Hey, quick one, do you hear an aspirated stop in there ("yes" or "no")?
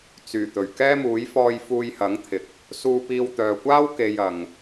yes